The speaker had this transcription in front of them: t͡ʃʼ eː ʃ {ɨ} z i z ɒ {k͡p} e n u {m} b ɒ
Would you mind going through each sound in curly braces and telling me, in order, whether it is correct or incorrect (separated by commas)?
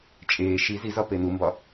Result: incorrect, incorrect, correct